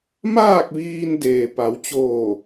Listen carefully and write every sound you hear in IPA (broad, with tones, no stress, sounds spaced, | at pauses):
m aː˥˨ k̚ ʋ iː˧ n d eː˩ p a˩˧ w t͡ɕ oː˧˩